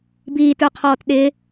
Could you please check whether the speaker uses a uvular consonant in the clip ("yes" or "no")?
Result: yes